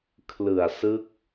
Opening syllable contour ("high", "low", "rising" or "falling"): low